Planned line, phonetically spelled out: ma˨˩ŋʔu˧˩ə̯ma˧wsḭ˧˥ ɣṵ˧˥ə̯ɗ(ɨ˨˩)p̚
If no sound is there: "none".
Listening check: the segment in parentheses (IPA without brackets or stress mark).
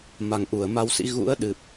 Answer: ɨ˨˩